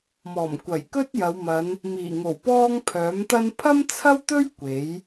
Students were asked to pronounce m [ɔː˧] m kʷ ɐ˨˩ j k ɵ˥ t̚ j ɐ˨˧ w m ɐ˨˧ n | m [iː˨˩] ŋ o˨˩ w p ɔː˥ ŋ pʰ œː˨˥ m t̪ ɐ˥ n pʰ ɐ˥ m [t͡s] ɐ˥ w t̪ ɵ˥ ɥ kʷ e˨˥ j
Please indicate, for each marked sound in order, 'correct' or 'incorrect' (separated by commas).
incorrect, correct, incorrect